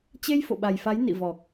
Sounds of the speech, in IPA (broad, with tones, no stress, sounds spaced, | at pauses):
t͡ɕ e˧ j f o̰˧˨ ɓ a˨˩ j f a˨˦ j n ḭ˧˨ v ɔ˨˩ k̚